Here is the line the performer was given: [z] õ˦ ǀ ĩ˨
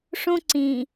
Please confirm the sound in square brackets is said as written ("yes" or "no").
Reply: no